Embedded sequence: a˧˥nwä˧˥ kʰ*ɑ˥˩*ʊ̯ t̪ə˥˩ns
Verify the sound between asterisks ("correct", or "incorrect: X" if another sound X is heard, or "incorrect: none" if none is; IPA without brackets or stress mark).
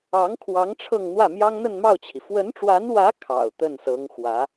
incorrect: ɑ̰˨˩